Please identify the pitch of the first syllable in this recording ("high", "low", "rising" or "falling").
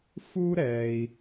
high